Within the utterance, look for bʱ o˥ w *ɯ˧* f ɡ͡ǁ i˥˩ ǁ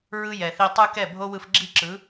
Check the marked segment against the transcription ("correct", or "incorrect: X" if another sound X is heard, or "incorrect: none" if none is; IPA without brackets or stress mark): correct